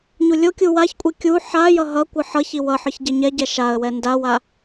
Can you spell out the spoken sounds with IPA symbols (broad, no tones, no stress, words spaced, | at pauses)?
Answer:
ɲulʲokʲu waçkʷʼi kʲu ħajʌ ɦʌkʷɯ ħʌçi wʌħɯç ɟeɲɛɟɛ ʃaə̯wɛ ndawa